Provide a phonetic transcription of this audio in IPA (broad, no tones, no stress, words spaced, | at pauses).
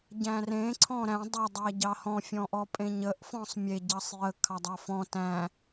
ɟæ̃rẽ ǀʰɔ̃ɾæ̃ dˤə dˤæɟɑhɔ̃ fʲɔ̃ʔɔpʼẽɲəʔ fɔ̃sˤmʲe ɟɑsˤjə kʰɑdˤɑfɔ̃ tæ̃